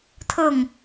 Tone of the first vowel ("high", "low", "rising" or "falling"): falling